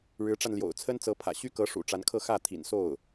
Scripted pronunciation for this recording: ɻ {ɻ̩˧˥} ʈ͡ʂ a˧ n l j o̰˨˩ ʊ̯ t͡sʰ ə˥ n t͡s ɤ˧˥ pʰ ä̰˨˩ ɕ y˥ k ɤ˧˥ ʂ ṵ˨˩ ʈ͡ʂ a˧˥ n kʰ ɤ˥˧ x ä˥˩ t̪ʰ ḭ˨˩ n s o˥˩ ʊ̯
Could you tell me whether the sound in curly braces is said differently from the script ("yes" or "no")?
no